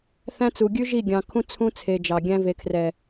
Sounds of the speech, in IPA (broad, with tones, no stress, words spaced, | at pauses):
θæ̃˦t͡su˨ ɡʲʉ˦ʒi˦˨ ɡʲɑ̃˨ kʰũ˦ t͡sʰũ˦t͡sʰe˨ d͡ʒɑ˨ɡʲæ̃˦ ve˨kʰrɛ˨